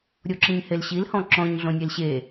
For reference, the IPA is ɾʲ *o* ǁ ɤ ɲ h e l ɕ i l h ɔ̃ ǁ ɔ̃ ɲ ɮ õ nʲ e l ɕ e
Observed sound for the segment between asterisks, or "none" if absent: o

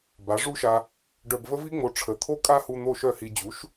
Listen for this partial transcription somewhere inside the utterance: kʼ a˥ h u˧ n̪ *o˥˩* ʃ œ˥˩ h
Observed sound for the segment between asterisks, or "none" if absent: o˥˩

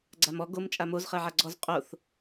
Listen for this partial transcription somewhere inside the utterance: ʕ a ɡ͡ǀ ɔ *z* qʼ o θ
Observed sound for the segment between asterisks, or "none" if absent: z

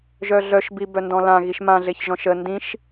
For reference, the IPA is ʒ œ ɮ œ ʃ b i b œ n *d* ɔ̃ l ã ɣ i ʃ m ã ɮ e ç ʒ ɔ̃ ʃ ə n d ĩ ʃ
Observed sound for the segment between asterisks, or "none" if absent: d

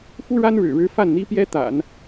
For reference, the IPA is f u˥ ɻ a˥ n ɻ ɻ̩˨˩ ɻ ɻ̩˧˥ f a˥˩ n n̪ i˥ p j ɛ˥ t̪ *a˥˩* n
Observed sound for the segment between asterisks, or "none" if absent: a̰˨˩˦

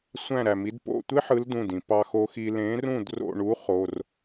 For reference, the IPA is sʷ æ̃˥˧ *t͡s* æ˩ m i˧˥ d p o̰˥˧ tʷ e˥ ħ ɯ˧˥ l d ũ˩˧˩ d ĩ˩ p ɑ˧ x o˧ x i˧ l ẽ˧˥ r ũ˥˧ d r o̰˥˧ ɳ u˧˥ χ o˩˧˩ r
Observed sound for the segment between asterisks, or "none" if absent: ɾ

